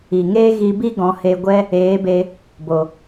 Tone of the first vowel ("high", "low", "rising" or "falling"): low